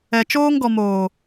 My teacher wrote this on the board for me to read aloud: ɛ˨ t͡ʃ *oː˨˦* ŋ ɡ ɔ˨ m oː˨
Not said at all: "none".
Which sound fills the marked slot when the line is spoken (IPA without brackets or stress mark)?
oː˦